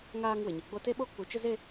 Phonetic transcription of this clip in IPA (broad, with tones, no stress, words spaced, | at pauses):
ŋaː˦ŋ wɪ˨ɲɪ˨ɡ͡bo˦ te˦ɓo˦ k͡pu˨t͡ʃɪ˦ze˦